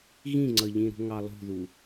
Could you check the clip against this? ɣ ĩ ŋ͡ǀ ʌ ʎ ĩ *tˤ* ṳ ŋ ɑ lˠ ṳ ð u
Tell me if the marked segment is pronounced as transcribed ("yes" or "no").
no